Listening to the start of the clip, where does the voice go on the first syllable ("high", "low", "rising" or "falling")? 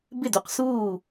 falling